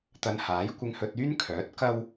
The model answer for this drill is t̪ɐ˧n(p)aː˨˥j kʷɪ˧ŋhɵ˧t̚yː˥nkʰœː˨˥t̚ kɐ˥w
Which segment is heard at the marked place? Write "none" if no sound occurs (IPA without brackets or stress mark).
h